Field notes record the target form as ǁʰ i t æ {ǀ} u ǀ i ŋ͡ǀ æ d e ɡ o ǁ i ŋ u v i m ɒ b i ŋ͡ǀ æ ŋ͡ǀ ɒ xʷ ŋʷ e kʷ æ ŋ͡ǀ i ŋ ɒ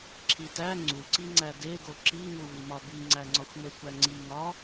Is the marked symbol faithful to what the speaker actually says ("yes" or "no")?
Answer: no